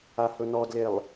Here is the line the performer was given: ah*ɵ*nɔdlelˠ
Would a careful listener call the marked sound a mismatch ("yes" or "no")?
no